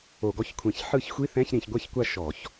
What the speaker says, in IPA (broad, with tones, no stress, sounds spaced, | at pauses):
o˧˩˧ ɡ ɔ˧˥˧ ç kʷʰ ẽ˧˩˧ ç ħ ɯ˥˩ ç xʷ i˧˥˧ θ ɛ̃˧˥˧ ç ɾ ĩ˧˩˧ ç ɡʷ ɛ˥˩ ç kʷ a˥˩ ʃ ɔ˧˩˧ ç